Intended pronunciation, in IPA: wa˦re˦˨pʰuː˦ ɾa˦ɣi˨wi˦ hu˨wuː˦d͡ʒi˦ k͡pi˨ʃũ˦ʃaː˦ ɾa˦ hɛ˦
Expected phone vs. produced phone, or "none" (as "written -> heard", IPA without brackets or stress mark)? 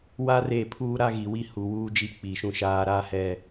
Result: none